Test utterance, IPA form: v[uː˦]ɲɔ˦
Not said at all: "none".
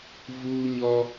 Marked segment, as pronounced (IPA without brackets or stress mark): uː˦